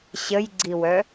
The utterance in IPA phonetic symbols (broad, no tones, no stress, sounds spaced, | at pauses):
ɕ ə j ɡ͡ǀ i w œ